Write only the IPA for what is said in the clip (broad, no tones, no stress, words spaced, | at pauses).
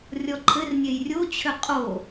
rʲɔǃʰɘrnʲej rʲot͡ɕʰʏ qʼo